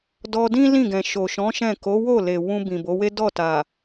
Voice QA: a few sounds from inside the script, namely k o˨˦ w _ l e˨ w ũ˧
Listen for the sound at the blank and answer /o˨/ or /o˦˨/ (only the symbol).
o˦˨